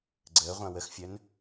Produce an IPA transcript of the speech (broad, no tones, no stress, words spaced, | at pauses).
ɡ͡ǀəːʁʷã wəxfʲœn